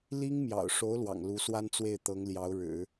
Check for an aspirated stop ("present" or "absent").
absent